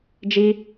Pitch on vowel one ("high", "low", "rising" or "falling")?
high